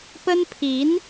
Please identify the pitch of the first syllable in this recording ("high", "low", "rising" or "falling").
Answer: high